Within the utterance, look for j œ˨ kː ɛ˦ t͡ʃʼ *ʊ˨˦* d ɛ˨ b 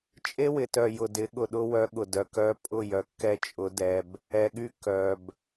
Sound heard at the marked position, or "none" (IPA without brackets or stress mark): ʊ˨˦